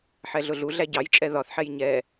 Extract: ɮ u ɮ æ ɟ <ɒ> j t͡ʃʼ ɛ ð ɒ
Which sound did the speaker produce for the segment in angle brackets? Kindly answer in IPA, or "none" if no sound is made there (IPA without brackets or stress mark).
ɑ